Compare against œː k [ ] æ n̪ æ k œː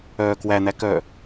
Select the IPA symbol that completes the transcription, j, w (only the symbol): w